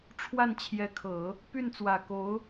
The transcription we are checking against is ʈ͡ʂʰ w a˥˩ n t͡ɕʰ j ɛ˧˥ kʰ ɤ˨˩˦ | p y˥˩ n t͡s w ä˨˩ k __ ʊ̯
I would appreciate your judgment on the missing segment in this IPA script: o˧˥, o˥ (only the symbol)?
o˧˥